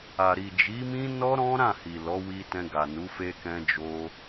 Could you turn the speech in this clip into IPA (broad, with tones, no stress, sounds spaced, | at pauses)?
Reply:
a˨ ɾ i˨ d͡ʒ i˨˦ m ĩ˦ n ɔ˦ ɾ ɔ̃˦ ɾ ã˦˨ h i˨ l ɔ˨˦ w i˧ t ɛ̃˧ ɡ a˨ n u˨˦ f e˧ k ɛ̃˧ d͡ʒ o˧